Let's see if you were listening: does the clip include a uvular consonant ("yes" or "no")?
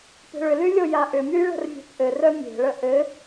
no